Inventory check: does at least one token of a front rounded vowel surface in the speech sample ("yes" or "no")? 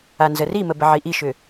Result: yes